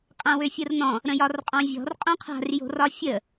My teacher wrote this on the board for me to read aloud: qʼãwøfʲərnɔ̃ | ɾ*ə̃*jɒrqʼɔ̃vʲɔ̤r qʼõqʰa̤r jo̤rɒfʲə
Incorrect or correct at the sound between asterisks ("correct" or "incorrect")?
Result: correct